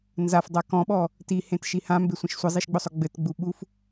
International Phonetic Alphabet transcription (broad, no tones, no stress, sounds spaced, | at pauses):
n z a f dˤ a k ɔ̃ ɓ ɔ | t i h ẽ t ʃ i h ã m b e sʷ ĩ ʃ sʷ ɘ zˤ i ʃ ɡ͡b ʊ sˤ ʊ ɡ͡b ɘ t ɡ͡b u ɓ u f